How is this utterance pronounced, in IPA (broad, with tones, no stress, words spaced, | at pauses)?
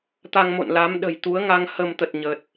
t̪a˧ŋmo̰˧˨n la˨˦m ɗə̤˨˩j t̪u˨˦ə̯ŋa˧ŋ hə˧mt̪ə˨˩t̚ ɲə˨˩t̚